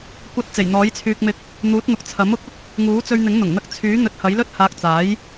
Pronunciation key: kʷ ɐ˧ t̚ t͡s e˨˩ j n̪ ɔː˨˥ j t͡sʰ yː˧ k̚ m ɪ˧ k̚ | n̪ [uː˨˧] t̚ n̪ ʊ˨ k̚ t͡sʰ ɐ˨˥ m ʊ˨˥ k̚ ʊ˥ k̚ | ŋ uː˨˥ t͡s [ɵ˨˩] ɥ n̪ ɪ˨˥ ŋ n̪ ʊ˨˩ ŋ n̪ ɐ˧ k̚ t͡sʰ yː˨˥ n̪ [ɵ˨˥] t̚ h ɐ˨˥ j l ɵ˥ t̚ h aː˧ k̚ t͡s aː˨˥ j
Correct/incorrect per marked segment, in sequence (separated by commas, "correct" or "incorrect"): incorrect, incorrect, correct